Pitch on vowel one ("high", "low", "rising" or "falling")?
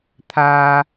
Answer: high